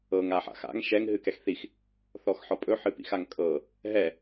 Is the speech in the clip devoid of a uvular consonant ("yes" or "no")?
yes